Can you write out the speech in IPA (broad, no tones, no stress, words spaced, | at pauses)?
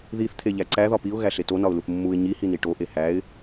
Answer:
ðiθ t̪ʰeʎæǀæ ðɒpiʊ̯ ɣæɬeto nɒʊ̯luθmːuɪ̯ ɲi hiniʈo ʔehæɪ̯